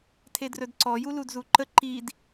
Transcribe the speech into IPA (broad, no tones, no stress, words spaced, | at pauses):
tʰedrɵdǀɔ juludzuǃə ǃid